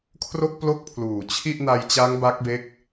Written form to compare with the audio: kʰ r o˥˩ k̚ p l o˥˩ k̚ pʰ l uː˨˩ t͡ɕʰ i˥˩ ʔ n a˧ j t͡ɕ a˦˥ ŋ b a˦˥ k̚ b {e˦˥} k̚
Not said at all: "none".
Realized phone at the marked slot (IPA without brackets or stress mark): e˦˥